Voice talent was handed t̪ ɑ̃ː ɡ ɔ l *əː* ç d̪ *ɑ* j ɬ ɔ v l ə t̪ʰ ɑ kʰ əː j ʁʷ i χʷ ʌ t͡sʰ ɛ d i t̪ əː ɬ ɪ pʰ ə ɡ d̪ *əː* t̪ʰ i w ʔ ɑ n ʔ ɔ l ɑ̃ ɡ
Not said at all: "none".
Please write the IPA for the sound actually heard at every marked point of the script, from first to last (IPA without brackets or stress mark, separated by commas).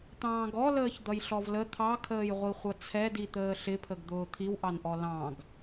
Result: əː, ʌ, ʊː